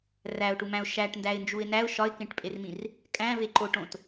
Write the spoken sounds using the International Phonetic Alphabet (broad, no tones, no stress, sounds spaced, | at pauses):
r æ ʊ̯ ʈ u m æ̃ ʊ̯ ʃ æ ʈ n d æ ɪ̯ n d͡ʒ u ɪ̯ n æ ʊ̯ ʃ ɒ ɪ̯ k ẽ ʈ pʼ e r m ĩ r | kʼ æ̃ v e ǃ o ʈ õ t